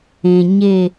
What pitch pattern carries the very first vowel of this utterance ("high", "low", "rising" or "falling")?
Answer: low